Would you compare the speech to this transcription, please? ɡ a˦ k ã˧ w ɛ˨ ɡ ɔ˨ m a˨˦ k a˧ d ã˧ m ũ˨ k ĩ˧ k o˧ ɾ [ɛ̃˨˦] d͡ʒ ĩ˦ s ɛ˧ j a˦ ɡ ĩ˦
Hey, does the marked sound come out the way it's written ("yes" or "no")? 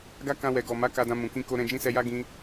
no